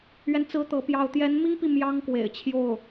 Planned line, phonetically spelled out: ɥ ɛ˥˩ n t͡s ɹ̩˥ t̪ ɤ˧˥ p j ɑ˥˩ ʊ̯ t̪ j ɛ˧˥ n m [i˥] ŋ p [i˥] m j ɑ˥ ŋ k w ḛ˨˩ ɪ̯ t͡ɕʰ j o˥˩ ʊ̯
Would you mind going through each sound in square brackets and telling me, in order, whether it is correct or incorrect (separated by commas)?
correct, incorrect